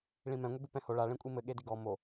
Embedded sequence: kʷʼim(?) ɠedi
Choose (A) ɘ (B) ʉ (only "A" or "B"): A